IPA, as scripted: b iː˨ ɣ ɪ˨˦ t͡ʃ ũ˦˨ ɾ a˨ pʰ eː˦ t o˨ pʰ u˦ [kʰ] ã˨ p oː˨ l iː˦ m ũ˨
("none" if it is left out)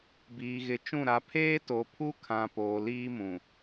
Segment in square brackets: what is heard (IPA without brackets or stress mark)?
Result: kʰ